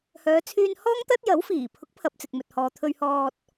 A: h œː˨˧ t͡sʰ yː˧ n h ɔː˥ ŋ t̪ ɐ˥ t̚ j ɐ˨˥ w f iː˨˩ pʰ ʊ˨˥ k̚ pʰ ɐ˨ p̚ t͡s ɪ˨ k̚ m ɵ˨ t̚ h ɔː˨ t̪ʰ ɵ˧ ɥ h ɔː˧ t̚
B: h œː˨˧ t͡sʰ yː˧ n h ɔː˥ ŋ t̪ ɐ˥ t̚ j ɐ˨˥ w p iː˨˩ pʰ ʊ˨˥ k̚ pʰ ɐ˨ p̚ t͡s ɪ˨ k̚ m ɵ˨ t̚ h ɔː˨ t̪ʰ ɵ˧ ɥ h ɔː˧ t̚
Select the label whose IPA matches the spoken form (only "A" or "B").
A